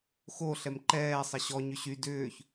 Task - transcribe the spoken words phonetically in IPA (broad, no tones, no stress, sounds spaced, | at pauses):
x o ɬ ɛ m ǃ ɛː sˤ ɐ ɕ ɔ ɲ ʏ ɕ y d ʏː ç